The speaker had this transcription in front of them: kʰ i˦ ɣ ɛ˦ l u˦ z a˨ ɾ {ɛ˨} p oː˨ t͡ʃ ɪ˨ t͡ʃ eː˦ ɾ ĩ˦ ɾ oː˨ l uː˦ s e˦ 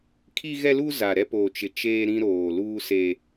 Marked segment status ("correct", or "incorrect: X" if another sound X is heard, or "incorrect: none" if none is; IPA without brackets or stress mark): incorrect: ɛ˦